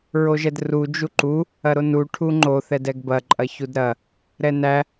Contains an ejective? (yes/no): yes